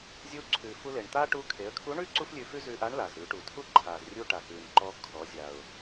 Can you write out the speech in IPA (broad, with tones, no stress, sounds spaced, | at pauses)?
zʲ u˧˥ ǀʰ ʉ˩ f u˧ l e˩ ɳ t̪ a˥ ʈ u˧˥ kʰ e˩˧ ə̯ kʰ u˧˥ ɳ ʉ˥ ǀ u˥ f lʲ ʉ˧ f ʉ˥ z ʉ˧ ʔ a˧˥ ɳ l a˩ z ɾ ʉ˩˧ ʈ u˩˧ tʰ u˥ ǃʰ a˩ z rʲ u˧ ʈ a˩ x ʉ˩ n ǃ ɔ˧ kʰ ɔ˩˧ zʲ a˩ ʊ̯